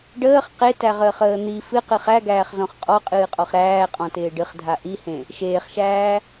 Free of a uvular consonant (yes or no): no